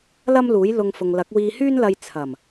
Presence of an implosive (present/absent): absent